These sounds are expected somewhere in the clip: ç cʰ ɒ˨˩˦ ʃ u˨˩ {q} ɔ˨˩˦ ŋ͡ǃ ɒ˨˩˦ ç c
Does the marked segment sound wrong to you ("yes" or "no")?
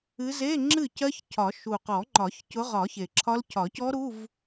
no